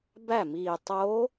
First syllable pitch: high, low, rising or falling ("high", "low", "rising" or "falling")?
falling